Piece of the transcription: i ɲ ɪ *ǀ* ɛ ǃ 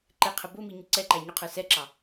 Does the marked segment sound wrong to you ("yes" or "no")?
no